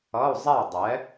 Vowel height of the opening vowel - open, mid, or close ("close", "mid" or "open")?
mid